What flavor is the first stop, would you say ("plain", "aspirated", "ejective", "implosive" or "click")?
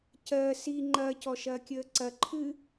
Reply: plain